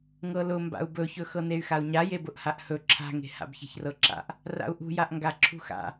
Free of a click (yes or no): no